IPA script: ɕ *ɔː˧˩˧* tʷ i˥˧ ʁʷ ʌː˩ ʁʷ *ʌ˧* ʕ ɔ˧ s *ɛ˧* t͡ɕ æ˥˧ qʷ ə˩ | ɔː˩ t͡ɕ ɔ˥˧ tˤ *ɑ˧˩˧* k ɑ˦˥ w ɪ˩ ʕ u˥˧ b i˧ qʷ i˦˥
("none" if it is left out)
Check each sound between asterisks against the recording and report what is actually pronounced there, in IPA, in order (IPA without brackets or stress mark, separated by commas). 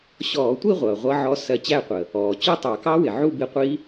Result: ɔː˧˩˧, ʌ˧, ɜ˧, ɑ˧˩˧